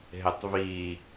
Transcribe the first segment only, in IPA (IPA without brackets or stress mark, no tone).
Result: ɦ